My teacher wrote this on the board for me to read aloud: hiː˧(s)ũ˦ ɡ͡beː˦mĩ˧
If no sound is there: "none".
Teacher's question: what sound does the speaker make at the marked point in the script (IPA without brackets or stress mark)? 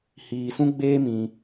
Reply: s